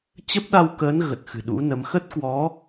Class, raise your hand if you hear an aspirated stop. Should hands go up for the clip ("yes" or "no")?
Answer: no